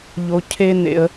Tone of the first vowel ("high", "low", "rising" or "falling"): high